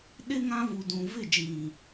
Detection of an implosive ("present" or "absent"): present